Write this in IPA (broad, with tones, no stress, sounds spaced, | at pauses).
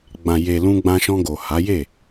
ɡ͡b ã˨ j e˨ l ũ˧ ɡ͡b ã˧ ʃ ɔ̃˧ ɡ o˨ h a˨˦ j e˦˨